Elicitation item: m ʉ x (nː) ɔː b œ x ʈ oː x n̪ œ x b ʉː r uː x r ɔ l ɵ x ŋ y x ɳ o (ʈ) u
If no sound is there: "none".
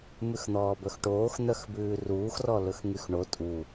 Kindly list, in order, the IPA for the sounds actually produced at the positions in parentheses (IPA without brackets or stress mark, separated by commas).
n̪, tʼ